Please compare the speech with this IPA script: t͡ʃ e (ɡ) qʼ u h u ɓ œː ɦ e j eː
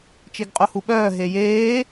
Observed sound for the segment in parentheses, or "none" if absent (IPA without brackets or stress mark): ɡ